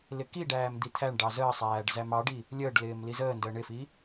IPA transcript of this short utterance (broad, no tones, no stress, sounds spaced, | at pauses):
l ɪ k i ɖ æː m d̪ i t̪ʰ æ ɳ ɖ ɑ z əː sˤ æː ɖ z æ m ɑ ɖ i | lʲ əː ɖ l ɪː m l i z əː n d əː ɳ ɪ f i